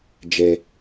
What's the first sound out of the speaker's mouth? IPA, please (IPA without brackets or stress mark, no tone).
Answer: d͡ʒ